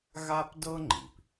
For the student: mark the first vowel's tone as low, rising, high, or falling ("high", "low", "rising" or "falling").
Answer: high